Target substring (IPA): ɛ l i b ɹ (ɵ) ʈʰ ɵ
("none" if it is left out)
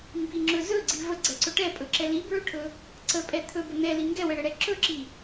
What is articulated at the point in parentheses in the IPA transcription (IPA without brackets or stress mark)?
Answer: ɵ